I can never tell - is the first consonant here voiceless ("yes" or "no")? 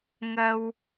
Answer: no